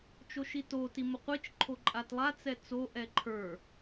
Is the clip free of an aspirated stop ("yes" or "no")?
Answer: no